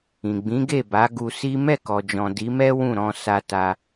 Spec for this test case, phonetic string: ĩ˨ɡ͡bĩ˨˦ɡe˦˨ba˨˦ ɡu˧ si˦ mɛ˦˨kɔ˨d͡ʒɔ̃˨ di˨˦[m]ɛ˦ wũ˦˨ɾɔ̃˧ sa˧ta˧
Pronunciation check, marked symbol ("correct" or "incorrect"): correct